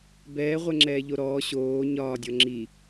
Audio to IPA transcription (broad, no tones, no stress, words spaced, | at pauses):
bɛːʁʷɛŋ͡ǁɛː ʎoɾɔː ɕoː ɲɒːdʲɔ ŋ͡ǁi